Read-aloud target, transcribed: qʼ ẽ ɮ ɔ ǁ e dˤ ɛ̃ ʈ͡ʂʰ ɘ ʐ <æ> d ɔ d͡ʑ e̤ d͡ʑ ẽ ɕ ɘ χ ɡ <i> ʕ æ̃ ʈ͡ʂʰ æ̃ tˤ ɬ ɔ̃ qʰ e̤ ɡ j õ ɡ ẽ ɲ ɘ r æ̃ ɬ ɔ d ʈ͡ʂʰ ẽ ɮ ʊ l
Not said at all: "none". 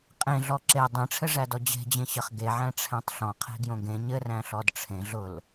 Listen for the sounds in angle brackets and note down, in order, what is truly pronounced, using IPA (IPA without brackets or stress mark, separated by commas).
æ, e